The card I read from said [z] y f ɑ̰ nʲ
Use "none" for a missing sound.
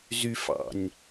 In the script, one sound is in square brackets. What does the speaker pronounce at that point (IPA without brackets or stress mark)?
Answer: z